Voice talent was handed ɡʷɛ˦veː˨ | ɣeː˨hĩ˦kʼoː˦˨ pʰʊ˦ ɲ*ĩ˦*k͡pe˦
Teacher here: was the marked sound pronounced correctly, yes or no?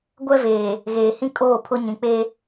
no